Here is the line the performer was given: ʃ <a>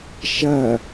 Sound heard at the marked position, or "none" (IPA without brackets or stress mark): ɐ